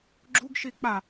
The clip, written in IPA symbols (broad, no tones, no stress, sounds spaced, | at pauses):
ɡ͡ǁ u ɡ ʃ i k͡p a